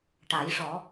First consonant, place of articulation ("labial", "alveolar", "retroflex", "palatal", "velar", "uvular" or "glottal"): retroflex